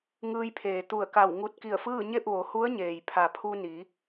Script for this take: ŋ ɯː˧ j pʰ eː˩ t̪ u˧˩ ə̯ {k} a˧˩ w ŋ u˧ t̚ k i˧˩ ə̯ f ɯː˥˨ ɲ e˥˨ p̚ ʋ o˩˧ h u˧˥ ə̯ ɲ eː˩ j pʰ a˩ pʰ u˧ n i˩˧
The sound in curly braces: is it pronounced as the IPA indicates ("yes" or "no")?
yes